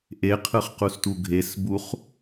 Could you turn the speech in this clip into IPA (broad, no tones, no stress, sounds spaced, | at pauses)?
ʔ e qʰ ɯ χ q u s t u ɡʱ e s b u χ